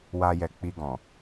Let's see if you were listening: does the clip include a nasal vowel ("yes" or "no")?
yes